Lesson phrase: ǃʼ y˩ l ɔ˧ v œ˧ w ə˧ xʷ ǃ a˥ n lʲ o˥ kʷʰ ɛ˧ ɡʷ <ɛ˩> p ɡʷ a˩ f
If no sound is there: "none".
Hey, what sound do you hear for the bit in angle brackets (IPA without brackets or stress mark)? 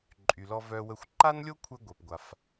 ɛ˩